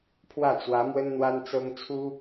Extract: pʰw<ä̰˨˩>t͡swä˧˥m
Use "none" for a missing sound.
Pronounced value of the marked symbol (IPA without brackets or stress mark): ä˥˩